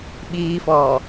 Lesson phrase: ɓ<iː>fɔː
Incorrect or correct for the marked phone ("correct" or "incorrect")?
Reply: correct